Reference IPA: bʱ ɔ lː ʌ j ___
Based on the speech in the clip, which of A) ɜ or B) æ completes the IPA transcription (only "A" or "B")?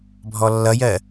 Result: A